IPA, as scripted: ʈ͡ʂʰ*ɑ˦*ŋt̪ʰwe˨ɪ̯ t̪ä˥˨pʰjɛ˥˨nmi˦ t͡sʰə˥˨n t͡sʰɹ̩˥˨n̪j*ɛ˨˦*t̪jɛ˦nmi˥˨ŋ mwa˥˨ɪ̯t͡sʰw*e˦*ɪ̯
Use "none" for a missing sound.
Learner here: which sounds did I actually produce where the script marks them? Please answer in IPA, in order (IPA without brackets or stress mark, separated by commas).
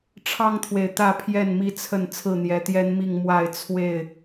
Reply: ɑ˦, ɛ˨˦, e˥˨